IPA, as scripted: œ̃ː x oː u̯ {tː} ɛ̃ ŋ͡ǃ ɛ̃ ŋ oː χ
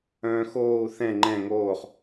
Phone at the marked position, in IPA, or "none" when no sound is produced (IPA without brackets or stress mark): θ